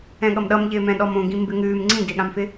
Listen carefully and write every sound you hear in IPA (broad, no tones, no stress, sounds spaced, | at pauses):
ɛ̃ ɠ ʌ m ɗ ʌ m ʎ ɪː m ɛ̃ ɗ ɔ m õ ɡ ĩ m b ɪ ŋ ʉː m ŋ͡ǀ ĩ d ɪː ɠ ã m f ɪ